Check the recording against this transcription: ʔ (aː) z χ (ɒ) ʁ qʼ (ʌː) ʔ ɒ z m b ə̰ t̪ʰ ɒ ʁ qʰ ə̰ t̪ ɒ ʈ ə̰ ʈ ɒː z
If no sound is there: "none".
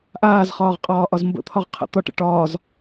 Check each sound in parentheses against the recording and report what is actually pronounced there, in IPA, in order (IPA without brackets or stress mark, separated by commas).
aː, ɒː, ɒː